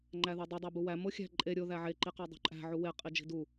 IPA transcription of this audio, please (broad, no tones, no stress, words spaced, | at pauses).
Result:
ŋ͡ǃæðodˤu dˤæbuwæ moxʲæ̤ ǃʼe ɾʲo ðæʕe ǃiqɒdˤṳǃʼæ̤ ʕuwe qʼid͡ʒi̤du